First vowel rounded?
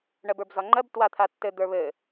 no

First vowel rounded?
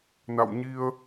no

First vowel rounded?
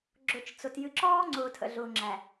yes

